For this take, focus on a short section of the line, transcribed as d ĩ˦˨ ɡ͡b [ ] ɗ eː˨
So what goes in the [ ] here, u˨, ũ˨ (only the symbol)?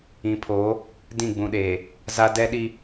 ũ˨